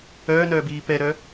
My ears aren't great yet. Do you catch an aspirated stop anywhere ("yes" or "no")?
no